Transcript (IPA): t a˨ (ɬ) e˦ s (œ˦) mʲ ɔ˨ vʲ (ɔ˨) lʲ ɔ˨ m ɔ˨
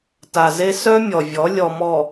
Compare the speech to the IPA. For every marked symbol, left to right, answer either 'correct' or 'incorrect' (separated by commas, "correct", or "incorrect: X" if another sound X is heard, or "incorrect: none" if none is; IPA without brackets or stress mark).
incorrect: z, correct, incorrect: ɔ˨˦